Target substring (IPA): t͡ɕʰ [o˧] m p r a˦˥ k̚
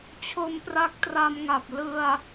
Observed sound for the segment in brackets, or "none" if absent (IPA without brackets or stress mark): o˧